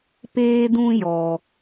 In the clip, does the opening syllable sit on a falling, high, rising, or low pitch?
high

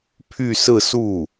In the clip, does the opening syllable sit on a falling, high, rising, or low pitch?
falling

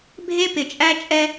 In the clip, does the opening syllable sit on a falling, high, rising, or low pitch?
high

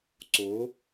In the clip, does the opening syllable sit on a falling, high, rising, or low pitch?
rising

